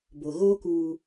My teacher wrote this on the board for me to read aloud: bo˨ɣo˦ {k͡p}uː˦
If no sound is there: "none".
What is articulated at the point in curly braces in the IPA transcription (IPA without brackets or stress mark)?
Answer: k